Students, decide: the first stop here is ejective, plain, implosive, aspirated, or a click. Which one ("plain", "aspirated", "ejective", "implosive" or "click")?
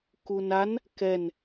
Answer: plain